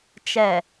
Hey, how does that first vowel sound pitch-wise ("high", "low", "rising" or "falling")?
low